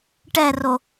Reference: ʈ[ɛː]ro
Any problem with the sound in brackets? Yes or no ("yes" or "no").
yes